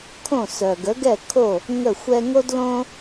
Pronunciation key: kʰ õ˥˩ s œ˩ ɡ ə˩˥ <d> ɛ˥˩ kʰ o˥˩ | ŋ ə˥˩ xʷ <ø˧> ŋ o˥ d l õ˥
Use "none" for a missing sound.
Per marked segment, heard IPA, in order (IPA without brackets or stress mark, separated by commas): ɡ, ɛ˧